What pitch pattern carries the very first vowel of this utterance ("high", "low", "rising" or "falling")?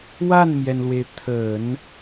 falling